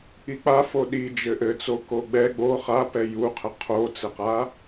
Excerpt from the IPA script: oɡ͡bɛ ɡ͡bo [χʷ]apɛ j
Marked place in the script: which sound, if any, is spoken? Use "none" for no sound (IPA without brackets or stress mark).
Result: χ